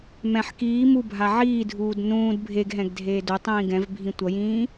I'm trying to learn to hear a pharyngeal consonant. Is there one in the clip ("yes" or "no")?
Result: yes